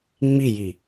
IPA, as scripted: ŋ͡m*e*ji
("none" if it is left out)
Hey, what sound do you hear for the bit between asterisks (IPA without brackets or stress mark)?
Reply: i